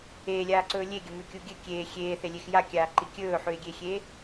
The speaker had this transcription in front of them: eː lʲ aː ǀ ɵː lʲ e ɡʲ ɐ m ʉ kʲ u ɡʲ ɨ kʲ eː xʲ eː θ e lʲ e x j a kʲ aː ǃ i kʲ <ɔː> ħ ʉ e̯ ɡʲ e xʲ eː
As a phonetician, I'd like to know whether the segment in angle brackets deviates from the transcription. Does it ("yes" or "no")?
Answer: yes